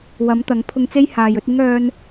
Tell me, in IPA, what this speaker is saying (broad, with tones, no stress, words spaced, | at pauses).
wɐ˨˥mt̪ɐ˨˥ŋ pʰʊ˧ŋt͡se˥jhaː˨jɵ˨˥t̚ ɪ˥ŋ œː˥n